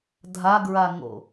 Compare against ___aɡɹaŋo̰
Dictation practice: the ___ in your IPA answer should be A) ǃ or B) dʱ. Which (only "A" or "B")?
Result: B